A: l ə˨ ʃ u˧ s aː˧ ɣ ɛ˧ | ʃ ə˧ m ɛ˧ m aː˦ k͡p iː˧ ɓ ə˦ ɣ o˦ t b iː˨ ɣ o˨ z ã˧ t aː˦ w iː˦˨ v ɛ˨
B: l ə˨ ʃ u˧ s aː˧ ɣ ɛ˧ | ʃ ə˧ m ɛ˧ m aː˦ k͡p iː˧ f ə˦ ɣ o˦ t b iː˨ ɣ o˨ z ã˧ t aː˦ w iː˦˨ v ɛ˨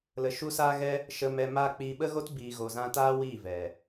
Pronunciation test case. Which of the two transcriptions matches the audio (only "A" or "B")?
A